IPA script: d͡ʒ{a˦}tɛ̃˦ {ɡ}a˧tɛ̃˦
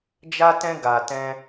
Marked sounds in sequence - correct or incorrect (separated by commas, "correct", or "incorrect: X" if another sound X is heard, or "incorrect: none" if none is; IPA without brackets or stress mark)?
correct, correct